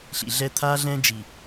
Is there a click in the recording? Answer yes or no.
no